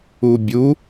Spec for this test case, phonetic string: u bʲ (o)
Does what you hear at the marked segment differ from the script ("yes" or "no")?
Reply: yes